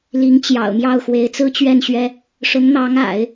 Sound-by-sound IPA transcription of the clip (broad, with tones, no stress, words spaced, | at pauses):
li˧˥ŋ t͡ɕjɑ̰˨˩ʊ̯ mjɑ˥˩ʊ̯ xwe˧˥ɪ̯t͡sɹ̩˥t͡ɕɥɛ˥˩nɕɥɛ˥ | ʂʊ˧˥ŋn̪ɑ˧˥ŋa̰˨˩˦ɪ̯